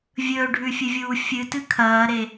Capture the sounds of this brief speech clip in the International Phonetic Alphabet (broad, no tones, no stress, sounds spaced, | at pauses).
vʲ ɵː ɖʱ ʉ fʲ ɨ vʲ uː fʲ ɨ t ɨ kʰ ɐː ɾ e